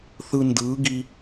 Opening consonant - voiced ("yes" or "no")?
no